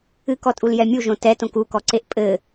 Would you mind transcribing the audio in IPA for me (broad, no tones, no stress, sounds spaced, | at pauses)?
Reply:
ɨ k ɔ tʼ u l j ɛ mʲ u ʒ õ t ɛ t õ k u k ɔ ǀ e ʔ pʼ ɘ